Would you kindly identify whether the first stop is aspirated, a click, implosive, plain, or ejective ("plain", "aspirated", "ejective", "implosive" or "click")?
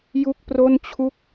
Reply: plain